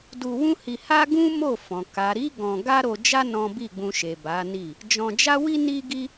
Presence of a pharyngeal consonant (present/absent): absent